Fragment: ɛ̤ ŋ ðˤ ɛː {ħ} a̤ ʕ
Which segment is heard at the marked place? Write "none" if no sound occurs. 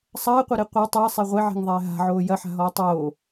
ɦ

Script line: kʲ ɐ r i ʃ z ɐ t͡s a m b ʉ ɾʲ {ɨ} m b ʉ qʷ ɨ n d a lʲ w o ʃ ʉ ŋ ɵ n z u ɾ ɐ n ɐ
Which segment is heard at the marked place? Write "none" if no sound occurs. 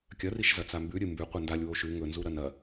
ɨ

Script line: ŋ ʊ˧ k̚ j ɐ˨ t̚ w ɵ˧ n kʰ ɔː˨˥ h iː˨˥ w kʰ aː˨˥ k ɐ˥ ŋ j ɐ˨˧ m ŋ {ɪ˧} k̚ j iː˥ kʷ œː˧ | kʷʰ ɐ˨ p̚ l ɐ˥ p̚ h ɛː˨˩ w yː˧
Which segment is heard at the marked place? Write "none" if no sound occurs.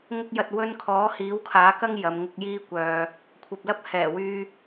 ɪ˧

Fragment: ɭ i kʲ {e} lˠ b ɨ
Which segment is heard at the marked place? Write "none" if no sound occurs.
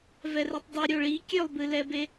ø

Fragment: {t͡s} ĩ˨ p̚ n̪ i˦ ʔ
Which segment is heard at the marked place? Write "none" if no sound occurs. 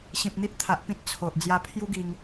ɕ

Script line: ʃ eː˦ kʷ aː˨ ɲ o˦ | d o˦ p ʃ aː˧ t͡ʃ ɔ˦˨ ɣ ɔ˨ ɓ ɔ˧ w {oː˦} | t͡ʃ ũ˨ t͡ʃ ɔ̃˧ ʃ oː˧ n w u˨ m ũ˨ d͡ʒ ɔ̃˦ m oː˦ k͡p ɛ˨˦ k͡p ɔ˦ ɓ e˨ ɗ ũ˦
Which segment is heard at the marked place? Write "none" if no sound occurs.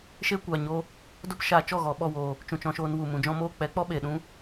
oː˨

